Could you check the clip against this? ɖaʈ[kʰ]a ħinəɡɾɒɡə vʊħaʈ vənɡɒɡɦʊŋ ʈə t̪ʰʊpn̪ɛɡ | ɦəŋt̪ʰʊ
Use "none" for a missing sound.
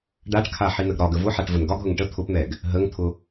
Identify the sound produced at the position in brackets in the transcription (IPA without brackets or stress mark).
kʰ